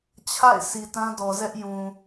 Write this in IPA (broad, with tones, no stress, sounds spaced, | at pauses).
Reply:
t͡ɕʰ a̰˦˨ ɪ̯ s i˨ t ã˦ d ɔ˨ z ɛ˦ ʔ j ũ˨